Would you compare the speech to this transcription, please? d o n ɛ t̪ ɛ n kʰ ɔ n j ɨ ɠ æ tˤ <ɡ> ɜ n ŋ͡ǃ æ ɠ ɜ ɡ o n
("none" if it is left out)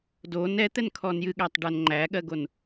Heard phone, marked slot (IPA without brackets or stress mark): ɖ